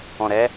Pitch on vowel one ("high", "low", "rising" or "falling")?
low